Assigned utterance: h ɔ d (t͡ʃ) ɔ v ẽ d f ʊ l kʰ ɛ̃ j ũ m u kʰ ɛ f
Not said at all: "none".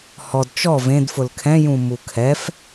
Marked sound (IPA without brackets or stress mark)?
t͡ʃ